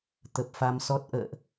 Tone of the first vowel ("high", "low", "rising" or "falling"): low